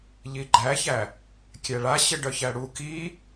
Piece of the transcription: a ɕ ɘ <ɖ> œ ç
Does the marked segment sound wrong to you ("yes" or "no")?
no